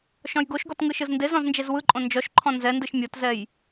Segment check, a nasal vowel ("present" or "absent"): present